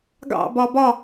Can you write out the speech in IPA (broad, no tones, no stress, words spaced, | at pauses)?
ɡɑ̰bɒ bɒ